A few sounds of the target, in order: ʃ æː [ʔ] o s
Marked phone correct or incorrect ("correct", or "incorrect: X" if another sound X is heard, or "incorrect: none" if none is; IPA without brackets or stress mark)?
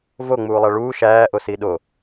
correct